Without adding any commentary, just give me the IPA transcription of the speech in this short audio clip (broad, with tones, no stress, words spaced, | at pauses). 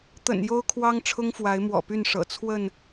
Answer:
t̪ə̰˨˩njo˦ʊ̯kʰwɑ˦ŋ ʈ͡ʂʰʊ˦ŋfwa˨˦ɪ̯mwɔ̰˨˩py˥˨n ʂɤ̰˨˩t͡sʰwə˥˨n